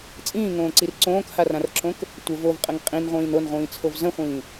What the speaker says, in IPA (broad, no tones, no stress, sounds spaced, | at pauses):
t͡sʼ ĩː ŋ õː ǀ i r ǀ õː k h a r ã r ǁ õ k | tʷ ə v o v qʼ ə ŋ qʼ ĩ n ʁʷ ĩː n o n ʁʷ ĩː t͡sʰ o v z ə̃ χʷ ĩː